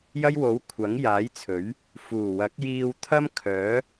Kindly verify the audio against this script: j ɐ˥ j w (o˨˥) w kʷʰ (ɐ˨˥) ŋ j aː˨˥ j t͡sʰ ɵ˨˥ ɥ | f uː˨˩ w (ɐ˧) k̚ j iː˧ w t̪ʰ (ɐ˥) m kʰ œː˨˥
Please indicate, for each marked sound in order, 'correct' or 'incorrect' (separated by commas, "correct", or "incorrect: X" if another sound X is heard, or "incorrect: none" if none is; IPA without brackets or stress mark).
correct, correct, incorrect: ɐ˨˥, correct